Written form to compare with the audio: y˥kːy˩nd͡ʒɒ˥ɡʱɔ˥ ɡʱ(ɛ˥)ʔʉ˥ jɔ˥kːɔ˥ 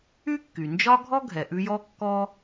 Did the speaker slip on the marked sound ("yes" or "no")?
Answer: yes